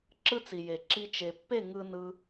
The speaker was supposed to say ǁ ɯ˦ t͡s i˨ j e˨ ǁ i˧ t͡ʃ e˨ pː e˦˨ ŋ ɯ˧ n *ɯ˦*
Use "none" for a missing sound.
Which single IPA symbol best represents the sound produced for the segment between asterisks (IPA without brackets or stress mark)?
ɯ˧